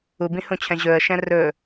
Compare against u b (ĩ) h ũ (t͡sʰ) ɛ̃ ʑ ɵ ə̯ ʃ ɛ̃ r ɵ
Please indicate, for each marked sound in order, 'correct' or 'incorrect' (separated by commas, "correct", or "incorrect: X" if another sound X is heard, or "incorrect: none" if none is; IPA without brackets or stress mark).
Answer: correct, incorrect: t͡ɕʰ